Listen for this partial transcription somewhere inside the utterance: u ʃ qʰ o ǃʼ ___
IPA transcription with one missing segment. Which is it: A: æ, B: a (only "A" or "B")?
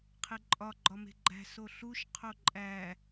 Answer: A